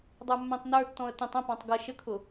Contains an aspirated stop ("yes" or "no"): yes